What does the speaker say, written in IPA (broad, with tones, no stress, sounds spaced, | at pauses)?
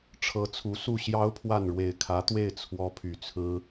ʈ͡ʂʰ ɤ˧˥ t͡sʰ u˧˥ s u˥˩ ɕ j ɑ˥ ʊ̯ pʰ w a˥˩ n ɻ w e˨˩ ɪ̯ kʰ ä˧˥ t̪ w e˥˩ ɪ̯ t͡sʰ w ɔ˥ pʰ y˨˩ t͡sʰ ɹ̩˥